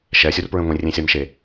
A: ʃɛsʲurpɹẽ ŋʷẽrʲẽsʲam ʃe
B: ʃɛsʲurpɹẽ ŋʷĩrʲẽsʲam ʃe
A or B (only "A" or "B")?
B